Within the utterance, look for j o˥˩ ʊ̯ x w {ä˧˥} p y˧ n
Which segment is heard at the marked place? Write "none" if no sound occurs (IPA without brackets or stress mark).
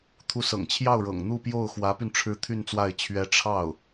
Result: ä˧˥